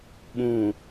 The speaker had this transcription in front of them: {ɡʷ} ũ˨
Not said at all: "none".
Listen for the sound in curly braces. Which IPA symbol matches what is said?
ɓ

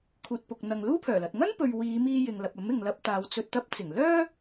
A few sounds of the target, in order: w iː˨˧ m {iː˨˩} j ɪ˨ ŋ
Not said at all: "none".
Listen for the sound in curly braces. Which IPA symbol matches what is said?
iː˧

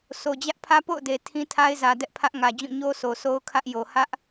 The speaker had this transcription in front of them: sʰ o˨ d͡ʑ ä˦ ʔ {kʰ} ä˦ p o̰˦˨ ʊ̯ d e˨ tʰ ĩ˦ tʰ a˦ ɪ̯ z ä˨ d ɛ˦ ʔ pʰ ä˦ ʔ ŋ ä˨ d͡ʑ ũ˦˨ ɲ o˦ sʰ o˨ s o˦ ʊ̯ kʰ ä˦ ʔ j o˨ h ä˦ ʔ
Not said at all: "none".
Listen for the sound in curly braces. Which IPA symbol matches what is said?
pʰ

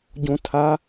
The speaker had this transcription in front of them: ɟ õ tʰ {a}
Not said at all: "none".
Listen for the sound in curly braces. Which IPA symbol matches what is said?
a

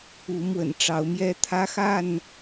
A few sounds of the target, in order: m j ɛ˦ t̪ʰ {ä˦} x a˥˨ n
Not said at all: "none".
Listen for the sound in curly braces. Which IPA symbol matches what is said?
ä˦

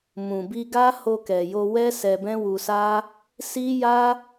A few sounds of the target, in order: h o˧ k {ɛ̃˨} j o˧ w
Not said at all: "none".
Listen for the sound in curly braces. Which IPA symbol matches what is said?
ɛ˨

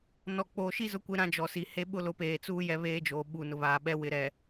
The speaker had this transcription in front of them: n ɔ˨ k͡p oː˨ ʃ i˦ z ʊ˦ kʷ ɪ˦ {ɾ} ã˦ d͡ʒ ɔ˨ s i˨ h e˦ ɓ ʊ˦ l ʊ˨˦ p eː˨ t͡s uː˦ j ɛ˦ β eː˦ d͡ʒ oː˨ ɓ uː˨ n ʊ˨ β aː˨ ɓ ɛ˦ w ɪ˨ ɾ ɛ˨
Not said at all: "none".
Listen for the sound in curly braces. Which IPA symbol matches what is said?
ɾ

